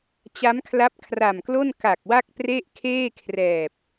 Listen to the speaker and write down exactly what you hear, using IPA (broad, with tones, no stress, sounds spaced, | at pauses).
t͡ɕ a˦˥ m kʰ l a˦˥ p̚ kʰ r a˨˩ m k l o˥˩ n k a˨˩ k̚ w a˥˩ k̚ p r e˥˩ ʔ kʰ eː˥˩ kʰ r ɛː˨˩ p̚